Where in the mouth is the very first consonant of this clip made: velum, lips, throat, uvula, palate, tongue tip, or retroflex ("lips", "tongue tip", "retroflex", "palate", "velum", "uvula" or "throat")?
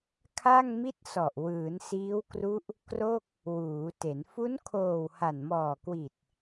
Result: velum